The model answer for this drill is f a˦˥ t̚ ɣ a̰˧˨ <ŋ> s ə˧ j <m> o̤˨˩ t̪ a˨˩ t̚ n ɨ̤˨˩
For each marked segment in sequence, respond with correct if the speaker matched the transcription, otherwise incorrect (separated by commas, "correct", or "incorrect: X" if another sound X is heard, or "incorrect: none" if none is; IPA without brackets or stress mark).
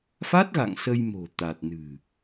correct, correct